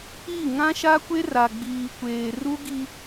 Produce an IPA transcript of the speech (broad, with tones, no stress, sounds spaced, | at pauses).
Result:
i˦˨ ŋ ã˦ ʃ a˦ kʷ e˦ r a˨ ɡ͡b iː˨ kʷ eː˨ r u˦ ɡ i˦